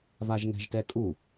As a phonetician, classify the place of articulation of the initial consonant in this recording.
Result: labial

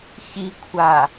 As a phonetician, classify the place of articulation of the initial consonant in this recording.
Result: palatal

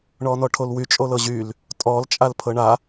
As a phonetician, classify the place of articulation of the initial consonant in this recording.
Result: retroflex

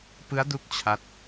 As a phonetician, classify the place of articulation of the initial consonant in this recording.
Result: labial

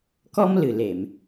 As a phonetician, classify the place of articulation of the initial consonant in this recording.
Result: velar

